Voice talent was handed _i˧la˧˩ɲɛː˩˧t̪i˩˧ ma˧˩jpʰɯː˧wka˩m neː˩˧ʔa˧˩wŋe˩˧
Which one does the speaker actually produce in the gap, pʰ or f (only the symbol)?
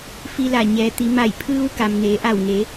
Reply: f